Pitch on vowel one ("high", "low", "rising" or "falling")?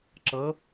rising